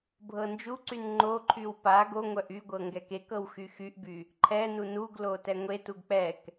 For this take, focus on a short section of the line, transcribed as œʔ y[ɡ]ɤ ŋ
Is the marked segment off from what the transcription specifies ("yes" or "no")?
yes